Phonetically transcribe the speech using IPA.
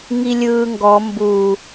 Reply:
ŋilʲɯːŋɡɔ mbu

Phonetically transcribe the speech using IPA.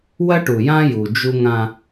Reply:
wɐ˦ʈu˨jã˦ju˨ d͡ʒu˦ŋã˦

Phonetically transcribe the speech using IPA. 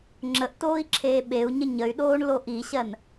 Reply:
ŋ͡ǁəʔtoːi̯ǁʰeː ɓeu̯ɲə ɲəy̯ɗoːɳlo ʔiɕɜn

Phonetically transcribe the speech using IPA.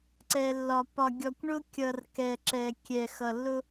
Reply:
ǀɛ˨lːɒ˨ pɒ˨ɡʲɔ˨kʷɳʊ˦kʲʌ˨r kɛ˨ǁɛ˨ kʲɛ˨xʌ˨ lːʊ˦

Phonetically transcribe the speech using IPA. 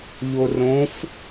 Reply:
ʎorõf

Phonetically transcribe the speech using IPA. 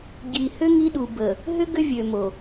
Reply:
ɟi˨hʏ˦ ŋi˦ɗu˨ bə˨ | ɦʏ˦ ɡʏ˦vʲø˨mo˨

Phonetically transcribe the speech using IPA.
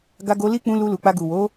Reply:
ɡa˧ɡo˧ li˦k͡pũ˧ lu˧lu˨k͡pa˧ ɡu˨wo˨˦

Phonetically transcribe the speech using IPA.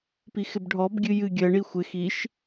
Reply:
pixɪbɖʱɔb ɡʲɨjɨ ɡʲɜ ɳixʷɪ xiʃ

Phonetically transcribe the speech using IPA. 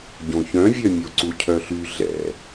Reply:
ɟõçœ̃vʲœ mʲoǀucʰœɬy ɮɛ̰

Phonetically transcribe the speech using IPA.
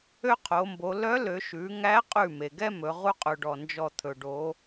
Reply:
ø˥qʰo˩˧mbo˩˧ lœ˧˥lø˩˧ ʃʉ˩˧ŋæ˧˥qʼʉ˧˩ me˩ɡɛ˥mɵ˩˧ ʁu˥qʼʉ˩ɖɔ˩ nd͡ʒɔ˧˩t̪ʰɵ˩ɖo˩˧

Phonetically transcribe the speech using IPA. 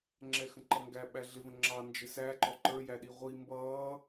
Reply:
ŋ͡ǁɛxə̃ǃʌŋɡæ ɓæɮɪ və̃ŋ͡ǁɑ nd͡ʒɪsæ ǃɔǃə˞ jæɗiʁʷi mbʌː

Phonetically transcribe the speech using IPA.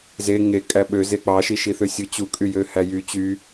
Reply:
ze ŋekʼæ ɓøze k͡pɑʃi ʃiθøsʲɯ t͡ɕukʼyjøhæ jy t͡ɕy

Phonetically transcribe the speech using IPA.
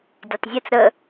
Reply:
dʲɛtˤzʲɨt͡s ɾə

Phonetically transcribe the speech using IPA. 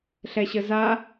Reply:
ɬɛɕəza

